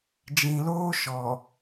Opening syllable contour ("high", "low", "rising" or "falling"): low